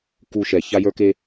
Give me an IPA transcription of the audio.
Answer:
k u˦ ʃ ɛ˨ ç a˦ j ə˞˦ k e˦

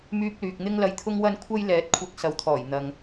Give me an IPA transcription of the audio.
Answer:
m yː˧ p̚ l yː˨ k̚ n̪ ɪ˥ ŋ l ɐ˧ j t̪ʰ ʊ˥ ŋ w ɐ˥ n kʷʰ ɐ˥ j l ɛː˨˥ t̚ kʷʰ ɐ˧ k̚ s ɐ˨˧ w t̪ʰ ɔː˨˩ j n̪ ɐ˨ ŋ

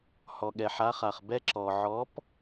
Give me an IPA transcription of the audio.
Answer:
h ɔ˩ ɠ ɛ˩ ħ a˨˥ χ a˩ χ b ɛ˦˥ ǁ ɔ˩ ʕ ɔ˨˥ p

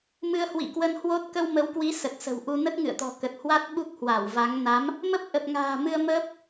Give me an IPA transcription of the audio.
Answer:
m ɨ˧ ə̯ h w ḭ˧˨ k w ə˧ n h w o˦˥ t̚ k ə˧ w m ə˨˦ w k w i˨˦ s ə˨˩ t̚ s ə̤˨˩ w ʔ u˧ n ə˦˥ t̚ ŋ ɨ̰˧˨ ə̯ t̪ ɔ̤˨˩ k ə˨˩ t̚ h w a˦˥ t̚ ɓ u˦˥ k̚ h w a˧˩ w v a˨˦ ŋ n a˨˦ m | m ə˦˥ p̚ ʔ ə˨˩ p̚ ŋ a̤ː˨˩ m ɨ˧ ə̯ m əː˦˥ p̚

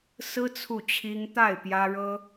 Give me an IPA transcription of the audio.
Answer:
s ɹ̩˥ t͡sʰ u˥˩ t͡ɕʰ i˥ ŋ t̪ a˥˩ ɪ̯ p j ä˥ ɻ ɤ˥

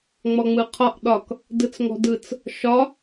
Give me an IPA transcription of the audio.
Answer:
ŋ͡m ɔ ŋ͡m ɯ qʰ ɒ ʔ ɗ ɒ k | d ɯ t͡s ŋ ɔ̤ d ɯ t͡s | ʃ ɒ

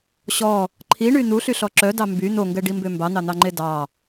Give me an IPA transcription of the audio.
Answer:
ɕ ɔ | ǃʰ i ɳ y n̪ u ɬ y ɬ ɔ ǁ œ d ɑ m b y n̪ o ŋ ɡ ɛ ɖ i m b ø m b ɑ n̪ ɑ n̪ ɑ ŋ͡ǃ e d ɑ

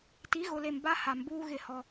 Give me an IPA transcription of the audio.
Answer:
t i˨˦ ɣ ʊ˨ l e˨ m b a˦ h a˨ m b uː˦ ɣ ɪ˦˨ h ɔ˦

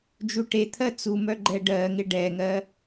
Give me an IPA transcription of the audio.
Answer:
d͡ʒ u ʈ e t̪ʰ ɜ t͡s u m œ ɡ͡ǃ ɛ ɖ ɜ ŋ ɪ ɖ ɛ ŋ ɜ

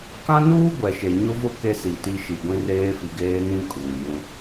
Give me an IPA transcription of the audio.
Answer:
k ã˦ n uː˦ ɡʷ ɛ˨ ʃ e˨ ɲ ʊ˦ v ʊ˦ k e˦ s i˨ t i˦ ʃ i˨ ɡʷ ĩ˦ r eː˦ f i˨ ɡ eː˦ n ĩ˦ kʼ uː˨ j ũ˦

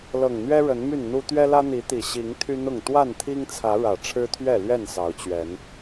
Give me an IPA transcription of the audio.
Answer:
l ɤ˨˩ ŋ n̪ ɥ ɛ˦ ɻ ə˨˦ n m y˥˨ n n̪ u˦ t̪ ɥ ɛ˦ l ä˦ n̪ i˨˦ t̪ i˨˩ ɕ i˨˦ ŋ t̪ʰ y˦ n̪ ʊ˥˨ ŋ t̪ w a˥˨ n t̪ʰ i˦ ŋ t͡sʰ ä˨˦ ɻ ä˨˩ ʈ͡ʂʰ ɻ̩˦ t̪ʰ ɥ ɛ˥˨ l ɥ ɛ˥˨ n s ɑ˨˦ ʊ̯ t͡ɕ ɥ ɛ˨˦ n

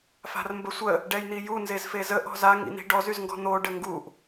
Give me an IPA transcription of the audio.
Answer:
f a̤ r m b ə sʷ ə | ɖ ɛ j n̪ i j u n z e z f e z ə ʔ ɔ̤ z a ŋ ḭ n̪ i̤ ɖ ɔ z y z ŋ ɡ ɔ̤ n̪ o ɖ ə ŋ ɡ u ʔ

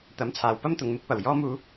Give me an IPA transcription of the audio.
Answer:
t̪ ɐ˨˥ m t͡sʰ aː˨˩ w p ɐ˥ m t̪ ʊ˨ ŋ m ɪ˧ k̚ p ɐ˨˩ w j ɔː˧ m uː˨˧

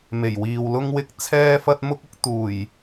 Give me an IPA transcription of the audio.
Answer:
m e˨˩ j w iː˨ w l ʊ˥ ŋ w ɪ˥ k̚ t͡sʰ ɛː˥ f ɐ˥ t̚ m ʊ˥ k̚ ʊ˨˥ k̚ t̪ uː˨˩ j

